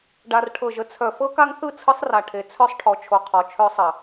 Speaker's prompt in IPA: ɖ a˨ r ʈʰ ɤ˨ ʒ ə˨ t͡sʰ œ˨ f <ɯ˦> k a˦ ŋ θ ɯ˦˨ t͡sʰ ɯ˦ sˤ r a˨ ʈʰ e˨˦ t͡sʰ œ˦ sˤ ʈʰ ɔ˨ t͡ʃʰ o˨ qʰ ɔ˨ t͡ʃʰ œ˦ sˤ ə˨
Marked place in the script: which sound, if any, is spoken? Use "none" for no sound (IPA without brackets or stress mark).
ɤ˦